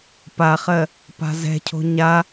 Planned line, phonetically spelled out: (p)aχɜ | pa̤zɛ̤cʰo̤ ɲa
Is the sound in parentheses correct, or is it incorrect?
correct